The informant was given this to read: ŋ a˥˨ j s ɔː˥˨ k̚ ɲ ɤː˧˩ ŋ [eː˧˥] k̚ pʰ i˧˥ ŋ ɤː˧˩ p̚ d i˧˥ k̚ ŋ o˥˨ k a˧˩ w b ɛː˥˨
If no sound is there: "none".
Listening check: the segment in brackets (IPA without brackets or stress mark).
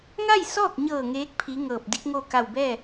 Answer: eː˧˥